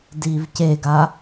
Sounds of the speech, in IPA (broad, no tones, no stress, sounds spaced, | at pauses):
d i v c e ɡ a